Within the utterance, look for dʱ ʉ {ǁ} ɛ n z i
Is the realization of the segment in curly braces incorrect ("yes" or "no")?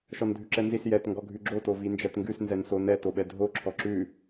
no